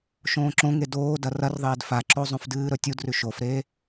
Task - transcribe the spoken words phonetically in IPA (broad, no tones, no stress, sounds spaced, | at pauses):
ʃ õː ǁ õ ŋ e d oː d ɐ r ɐ r ðˤ eː d f a ǁ o zˤ õ f d ɨː ɾ ɵ tʲ u d r ʉ ʃ o f ɾ eː